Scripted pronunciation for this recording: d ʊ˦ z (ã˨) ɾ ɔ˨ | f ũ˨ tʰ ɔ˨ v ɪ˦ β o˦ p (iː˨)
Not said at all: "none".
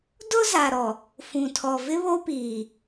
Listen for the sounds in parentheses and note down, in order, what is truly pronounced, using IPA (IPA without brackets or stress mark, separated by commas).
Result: a˨, iː˨